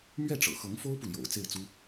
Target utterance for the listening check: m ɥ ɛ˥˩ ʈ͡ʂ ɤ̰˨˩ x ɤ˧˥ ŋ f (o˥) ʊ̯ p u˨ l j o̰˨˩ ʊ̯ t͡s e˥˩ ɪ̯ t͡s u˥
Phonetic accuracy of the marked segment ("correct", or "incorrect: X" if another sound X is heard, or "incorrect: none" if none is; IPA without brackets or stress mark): correct